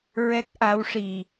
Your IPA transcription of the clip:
ɹ ɛ˦˥ k̚ ʔ a˧˥ w ʂ i˨˩

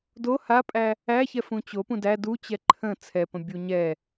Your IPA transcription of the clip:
d o h a pʼ æ | æ ç ɛ f ũ t͡ɕ o p ũ d æ d u t͡ɕ ɛ ǃʰ ə̃ t͡sʰ ɛ p ə̃ bʲ u ɲ ɛ

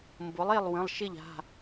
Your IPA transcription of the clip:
m b ʊ˩˥ lˠ e˥˩ lˠ w ə̃˩˧˩ lˠ ʃ ɪ˥˩ ʎ a̤˩˧˩

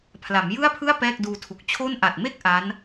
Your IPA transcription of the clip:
pʰ l a˩˦ m j ɯ˥˩ a̯ pʰ ɯ˥˩ a̯ p ɛː˥˩ k̚ d uː˧ tʰ u˨˩ k̚ t͡ɕʰ o˥˩ n ʔ a˨˩ t̚ m e˥˩ k̚ ʔ a˦˥ n

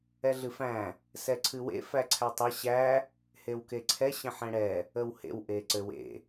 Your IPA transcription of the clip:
ɛ ɮ ɨ f æ̃ | s ɛ ǀʰ ɨ w ḛ f æ ǀʰ æ tˤ ɘ ɕ æ | h e w k e ǀʰ ɛ ɕ ə̃ ħ ɛ̃ ɽ ɛ | ə w h ḛ w ʔ e ǀ ɘ w ḛ

